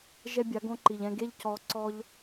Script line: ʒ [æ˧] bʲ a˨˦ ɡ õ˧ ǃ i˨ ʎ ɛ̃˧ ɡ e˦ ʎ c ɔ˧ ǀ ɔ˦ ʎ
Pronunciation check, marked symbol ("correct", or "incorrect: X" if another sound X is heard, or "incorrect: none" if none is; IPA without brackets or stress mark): incorrect: ɛ˧